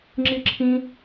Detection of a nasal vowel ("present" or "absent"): present